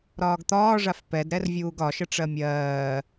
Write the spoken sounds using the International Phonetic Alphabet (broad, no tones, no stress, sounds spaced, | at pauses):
ɾ ɒː ɡ t̪ ɒː ʐ a f p ɛ d ɾ ɛ r vʲ uː ɡ ɒ ʃ ə ʈ͡ʂ ɜ mʲ ɜː